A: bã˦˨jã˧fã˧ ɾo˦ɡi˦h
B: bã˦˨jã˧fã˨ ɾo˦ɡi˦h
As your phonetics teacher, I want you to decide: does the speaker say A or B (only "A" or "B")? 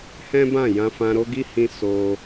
A